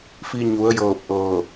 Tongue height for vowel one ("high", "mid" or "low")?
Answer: high